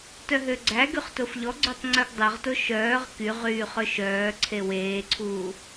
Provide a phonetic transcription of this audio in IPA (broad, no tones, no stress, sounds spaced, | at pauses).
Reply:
t œ ɦ ø ɡ͡ǀ æ ɡ y χ t o f ʎ ɔ ɡ͡ǀ ø tˤ ŋ͡ǀ œ ɡ dˤ ɵ ʁ t o ʃ œː ʁ k y ʁ yː χ ɵ ʃ œː ǀʰ e w eː ǀʰ uː